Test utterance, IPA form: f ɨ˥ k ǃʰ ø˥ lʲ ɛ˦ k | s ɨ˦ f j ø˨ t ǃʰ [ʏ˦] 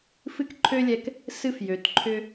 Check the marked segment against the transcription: correct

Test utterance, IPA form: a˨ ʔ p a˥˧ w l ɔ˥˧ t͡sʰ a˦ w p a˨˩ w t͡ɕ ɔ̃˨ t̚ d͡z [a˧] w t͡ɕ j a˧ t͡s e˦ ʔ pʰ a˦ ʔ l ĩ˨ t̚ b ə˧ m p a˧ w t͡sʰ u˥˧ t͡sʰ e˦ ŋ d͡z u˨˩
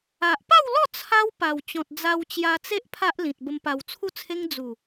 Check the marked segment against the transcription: correct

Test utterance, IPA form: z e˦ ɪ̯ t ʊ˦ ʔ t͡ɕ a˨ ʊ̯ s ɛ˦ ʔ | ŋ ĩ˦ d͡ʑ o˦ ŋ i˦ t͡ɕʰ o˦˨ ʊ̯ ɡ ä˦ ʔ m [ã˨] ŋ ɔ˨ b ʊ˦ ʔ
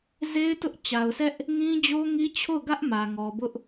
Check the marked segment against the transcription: incorrect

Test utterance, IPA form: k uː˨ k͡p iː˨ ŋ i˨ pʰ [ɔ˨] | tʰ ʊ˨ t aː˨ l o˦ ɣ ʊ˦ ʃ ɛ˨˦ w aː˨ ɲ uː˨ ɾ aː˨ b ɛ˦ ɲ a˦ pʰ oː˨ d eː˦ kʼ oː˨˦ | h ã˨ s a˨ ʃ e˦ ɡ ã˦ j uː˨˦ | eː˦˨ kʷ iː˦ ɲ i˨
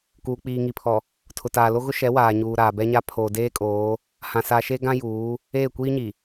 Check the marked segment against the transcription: correct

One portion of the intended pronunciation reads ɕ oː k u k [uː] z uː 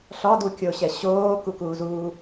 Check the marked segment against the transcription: correct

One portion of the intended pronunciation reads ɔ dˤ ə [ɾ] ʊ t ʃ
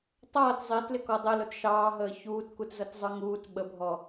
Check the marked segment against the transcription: incorrect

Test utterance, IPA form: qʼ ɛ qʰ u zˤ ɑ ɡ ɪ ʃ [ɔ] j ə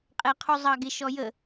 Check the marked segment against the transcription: correct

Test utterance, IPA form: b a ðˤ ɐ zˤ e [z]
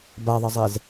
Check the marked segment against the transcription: correct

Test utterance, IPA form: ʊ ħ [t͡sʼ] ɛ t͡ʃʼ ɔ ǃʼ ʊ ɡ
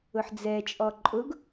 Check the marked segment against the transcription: incorrect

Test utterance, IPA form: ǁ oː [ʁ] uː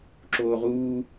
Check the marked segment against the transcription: correct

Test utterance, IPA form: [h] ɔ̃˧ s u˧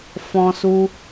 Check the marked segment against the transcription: incorrect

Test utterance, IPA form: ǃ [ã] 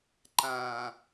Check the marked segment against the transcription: correct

